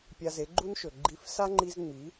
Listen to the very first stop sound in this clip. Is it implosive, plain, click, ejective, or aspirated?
plain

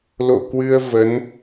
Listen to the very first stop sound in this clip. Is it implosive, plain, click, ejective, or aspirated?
plain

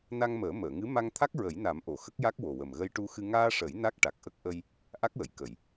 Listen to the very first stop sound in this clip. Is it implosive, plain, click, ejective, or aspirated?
aspirated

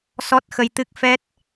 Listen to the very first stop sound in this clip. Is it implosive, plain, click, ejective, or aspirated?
plain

